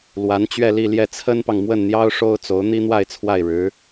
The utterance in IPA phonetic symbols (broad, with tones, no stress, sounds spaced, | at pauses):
l w a˧˥ n t͡ɕ ɥ ɛ˥˧ l i˥˧ l j ɛ˥˩ t͡sʰ ə˥ n p ɑ˨ ŋ m w ə˥˩ n n̪ j ɑ˥ ʊ̯ ʂ o˥ ʊ̯ t͡s o˧˥ ʊ̯ n̪ i˥ n̪ w a˥˧ ɪ̯ t͡sʰ w a˥˩ ɪ̯ ɻ ɻ̩˧˥